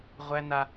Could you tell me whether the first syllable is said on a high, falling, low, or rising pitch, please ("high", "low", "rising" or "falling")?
high